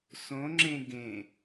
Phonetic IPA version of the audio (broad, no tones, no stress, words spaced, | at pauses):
sõ ŋ͡ǁẽɡẽ